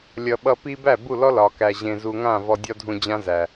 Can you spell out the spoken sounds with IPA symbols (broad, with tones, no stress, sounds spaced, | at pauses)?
lʲ ʌ˨ ɓ ʌ˧ p i˧ b æ˦˨ b u˦˨ l ɔ˦ l ɒ˨ k æ˨ ʑ ẽ˨ z u˨ ŋ ã˦˨ v ɔ˧ dʲ ɒ˦ dʱ ũ˧ d͡ʑ ã˦ z æ˨